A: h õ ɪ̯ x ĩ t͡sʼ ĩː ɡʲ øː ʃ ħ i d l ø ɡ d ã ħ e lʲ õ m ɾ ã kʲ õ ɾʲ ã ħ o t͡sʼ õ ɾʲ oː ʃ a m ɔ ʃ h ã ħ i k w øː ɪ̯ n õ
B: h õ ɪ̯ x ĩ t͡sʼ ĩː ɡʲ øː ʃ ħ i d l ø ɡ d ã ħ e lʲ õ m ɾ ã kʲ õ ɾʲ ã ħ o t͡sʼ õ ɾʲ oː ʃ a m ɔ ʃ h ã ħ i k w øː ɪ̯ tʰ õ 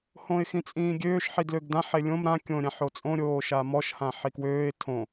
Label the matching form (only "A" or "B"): B